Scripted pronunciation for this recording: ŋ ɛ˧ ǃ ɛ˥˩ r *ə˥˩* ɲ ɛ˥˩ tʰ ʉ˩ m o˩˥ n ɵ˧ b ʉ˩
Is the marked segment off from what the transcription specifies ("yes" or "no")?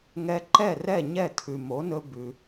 yes